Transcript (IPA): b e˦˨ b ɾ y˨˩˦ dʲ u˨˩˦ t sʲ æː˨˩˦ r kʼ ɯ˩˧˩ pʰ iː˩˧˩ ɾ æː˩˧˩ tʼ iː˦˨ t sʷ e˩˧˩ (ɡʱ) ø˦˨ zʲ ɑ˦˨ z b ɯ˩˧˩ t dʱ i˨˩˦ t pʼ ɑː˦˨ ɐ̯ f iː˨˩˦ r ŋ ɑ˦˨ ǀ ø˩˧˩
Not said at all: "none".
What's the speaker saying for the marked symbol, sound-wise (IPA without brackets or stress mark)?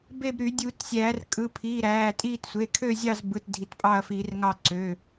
kʰ